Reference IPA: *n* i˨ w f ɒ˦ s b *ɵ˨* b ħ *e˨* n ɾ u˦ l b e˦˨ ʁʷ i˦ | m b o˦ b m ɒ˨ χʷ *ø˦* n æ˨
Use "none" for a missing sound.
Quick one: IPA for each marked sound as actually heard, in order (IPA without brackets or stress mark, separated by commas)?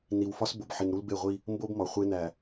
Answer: n, o˨, i˨, e˦